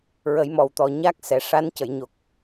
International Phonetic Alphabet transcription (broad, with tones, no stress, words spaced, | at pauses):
ɹə˨˩˦jmɔ˨˩wt̪ɔ˨˩ ɲa˦˥k̚sɛ˨˩ ʂa˧˥ncə˨˩˨jɲo˨˩k̚